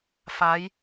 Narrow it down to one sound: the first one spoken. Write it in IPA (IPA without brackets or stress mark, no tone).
f